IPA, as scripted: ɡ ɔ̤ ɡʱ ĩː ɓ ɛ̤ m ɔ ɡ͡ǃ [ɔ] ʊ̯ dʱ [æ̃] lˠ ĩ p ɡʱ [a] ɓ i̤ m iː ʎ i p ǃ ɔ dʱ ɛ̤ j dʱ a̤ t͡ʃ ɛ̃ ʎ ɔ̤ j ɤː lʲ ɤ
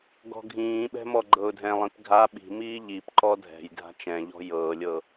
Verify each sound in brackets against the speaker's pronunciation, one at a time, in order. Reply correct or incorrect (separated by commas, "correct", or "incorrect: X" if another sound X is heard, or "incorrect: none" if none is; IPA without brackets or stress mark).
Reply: incorrect: ɤ, incorrect: ɛ̃, correct